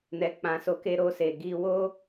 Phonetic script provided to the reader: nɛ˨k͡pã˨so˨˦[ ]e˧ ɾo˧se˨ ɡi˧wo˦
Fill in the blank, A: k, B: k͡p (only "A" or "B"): A